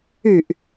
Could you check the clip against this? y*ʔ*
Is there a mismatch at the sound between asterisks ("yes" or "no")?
no